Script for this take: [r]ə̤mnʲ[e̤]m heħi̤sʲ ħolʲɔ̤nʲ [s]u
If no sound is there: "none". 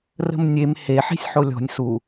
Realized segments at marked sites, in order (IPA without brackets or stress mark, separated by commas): r, e, s